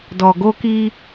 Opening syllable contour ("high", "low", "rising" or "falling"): low